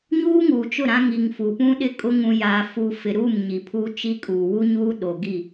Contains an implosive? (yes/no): yes